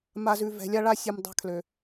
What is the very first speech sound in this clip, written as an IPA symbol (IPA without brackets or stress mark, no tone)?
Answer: m